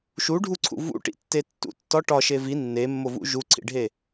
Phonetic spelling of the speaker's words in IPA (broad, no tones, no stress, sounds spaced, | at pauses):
ʃ u ɖʱ u ǀʰ ṵ v ṵ ʈ ḭ tː e tː ṵ tː ɒ ʈ ɒ ʃ e v i nː e mː o v ṵ ʒ u ǀʰ ḭ ɖʱ e